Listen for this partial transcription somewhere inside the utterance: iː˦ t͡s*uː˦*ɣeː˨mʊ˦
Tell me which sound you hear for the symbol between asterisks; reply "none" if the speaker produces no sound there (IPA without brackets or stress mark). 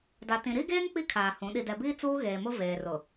uː˦